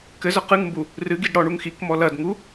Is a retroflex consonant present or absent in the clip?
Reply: present